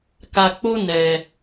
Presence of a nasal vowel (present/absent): absent